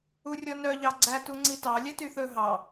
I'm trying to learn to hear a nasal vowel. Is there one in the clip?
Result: no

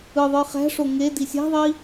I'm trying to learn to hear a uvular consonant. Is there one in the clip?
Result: yes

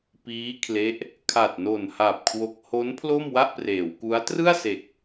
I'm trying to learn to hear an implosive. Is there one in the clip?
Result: no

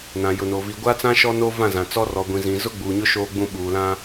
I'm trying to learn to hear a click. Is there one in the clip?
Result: no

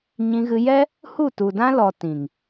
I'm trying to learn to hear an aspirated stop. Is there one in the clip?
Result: no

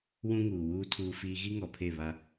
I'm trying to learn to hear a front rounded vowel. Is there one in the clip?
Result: no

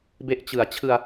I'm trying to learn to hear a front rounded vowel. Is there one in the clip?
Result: no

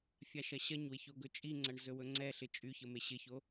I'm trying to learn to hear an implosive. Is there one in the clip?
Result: no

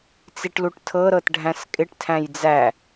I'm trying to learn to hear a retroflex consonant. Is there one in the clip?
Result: yes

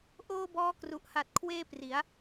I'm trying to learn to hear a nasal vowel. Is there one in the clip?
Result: no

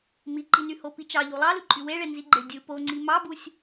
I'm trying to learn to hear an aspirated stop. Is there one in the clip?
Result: no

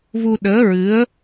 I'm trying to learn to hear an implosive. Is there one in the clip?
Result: yes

